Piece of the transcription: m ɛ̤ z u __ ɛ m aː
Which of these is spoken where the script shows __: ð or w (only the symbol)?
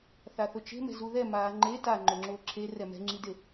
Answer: ð